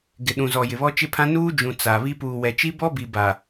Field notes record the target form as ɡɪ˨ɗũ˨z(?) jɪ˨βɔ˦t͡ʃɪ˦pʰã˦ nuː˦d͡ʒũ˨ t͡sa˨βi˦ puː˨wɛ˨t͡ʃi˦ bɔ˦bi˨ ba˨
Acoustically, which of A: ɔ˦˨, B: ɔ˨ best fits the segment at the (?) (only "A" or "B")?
B